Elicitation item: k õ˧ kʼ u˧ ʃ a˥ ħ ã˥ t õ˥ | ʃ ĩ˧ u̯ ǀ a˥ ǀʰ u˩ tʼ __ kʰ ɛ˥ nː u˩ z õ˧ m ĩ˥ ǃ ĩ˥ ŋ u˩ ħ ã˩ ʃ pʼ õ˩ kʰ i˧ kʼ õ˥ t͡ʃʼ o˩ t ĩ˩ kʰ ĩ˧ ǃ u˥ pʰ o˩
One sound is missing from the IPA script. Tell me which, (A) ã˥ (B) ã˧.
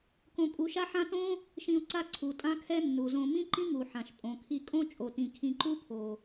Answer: A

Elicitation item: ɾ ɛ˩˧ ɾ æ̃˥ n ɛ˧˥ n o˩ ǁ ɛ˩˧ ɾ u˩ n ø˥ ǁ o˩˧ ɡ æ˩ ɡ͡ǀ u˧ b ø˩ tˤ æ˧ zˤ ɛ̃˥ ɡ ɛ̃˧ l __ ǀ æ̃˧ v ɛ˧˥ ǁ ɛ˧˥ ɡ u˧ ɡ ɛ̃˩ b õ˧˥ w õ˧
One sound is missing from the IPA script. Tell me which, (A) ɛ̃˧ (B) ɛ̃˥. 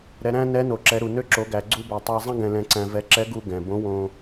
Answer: A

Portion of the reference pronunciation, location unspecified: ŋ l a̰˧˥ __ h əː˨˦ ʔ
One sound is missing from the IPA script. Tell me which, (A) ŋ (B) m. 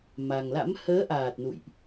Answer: B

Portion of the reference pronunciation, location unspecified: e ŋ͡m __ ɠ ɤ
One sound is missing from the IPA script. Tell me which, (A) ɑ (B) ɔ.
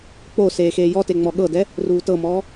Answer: B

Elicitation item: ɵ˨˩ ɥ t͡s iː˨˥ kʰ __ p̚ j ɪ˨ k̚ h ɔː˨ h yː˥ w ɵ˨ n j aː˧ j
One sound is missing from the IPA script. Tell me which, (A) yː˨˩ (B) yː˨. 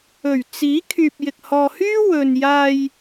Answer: B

